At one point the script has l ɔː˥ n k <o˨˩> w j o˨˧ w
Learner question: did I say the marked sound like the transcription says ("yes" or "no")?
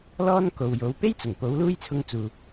no